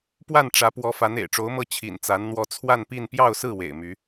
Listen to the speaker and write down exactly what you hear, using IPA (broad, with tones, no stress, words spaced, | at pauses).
pwa˥˩n ʈ͡ʂä˧˥pwɔ˧˥fa˧˥n ḛ˨˩ɪ̯ʈ͡ʂo˧˥ʊ̯mɤ˥˩ t͡ɕʰḭ˨˩nt͡sa˧˥nn̪wɔ˥˧ t͡sʰwa˥˧npi˥˧n pjɑ˥˧ʊ̯sɹ̩˥˩ wḛ˨˩ɪ̯my˧˥